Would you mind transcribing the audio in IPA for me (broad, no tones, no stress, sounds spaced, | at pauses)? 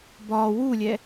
b ɒ w u lʲ ɛ